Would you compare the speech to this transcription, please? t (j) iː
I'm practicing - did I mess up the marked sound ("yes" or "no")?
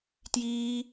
no